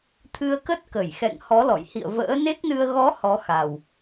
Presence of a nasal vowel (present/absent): absent